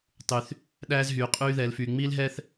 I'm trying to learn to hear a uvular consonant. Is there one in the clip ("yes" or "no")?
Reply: yes